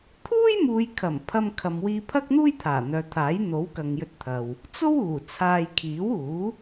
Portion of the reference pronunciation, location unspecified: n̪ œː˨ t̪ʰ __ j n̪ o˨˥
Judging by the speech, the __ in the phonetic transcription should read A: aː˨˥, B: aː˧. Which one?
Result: A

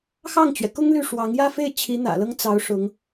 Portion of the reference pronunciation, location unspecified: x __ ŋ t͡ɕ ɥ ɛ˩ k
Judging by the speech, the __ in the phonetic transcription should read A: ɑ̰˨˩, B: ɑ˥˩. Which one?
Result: B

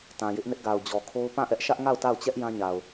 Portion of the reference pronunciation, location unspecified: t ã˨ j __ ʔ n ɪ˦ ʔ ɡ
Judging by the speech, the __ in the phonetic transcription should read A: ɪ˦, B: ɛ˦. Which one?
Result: A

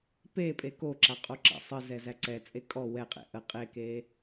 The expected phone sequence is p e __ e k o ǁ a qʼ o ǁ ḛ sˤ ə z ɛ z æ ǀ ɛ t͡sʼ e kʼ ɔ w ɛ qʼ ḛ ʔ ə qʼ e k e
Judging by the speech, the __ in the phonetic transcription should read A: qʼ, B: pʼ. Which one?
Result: B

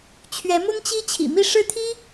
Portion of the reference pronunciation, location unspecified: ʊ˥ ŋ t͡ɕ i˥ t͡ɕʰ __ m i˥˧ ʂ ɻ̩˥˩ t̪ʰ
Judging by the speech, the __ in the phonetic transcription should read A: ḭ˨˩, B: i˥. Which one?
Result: A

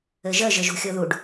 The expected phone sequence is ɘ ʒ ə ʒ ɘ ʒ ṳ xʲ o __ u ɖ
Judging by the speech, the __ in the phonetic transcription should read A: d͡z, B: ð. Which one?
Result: B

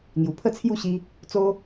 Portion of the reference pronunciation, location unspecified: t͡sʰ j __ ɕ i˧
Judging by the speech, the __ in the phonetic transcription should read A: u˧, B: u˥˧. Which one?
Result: B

